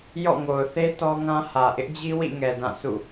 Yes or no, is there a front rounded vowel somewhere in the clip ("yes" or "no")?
no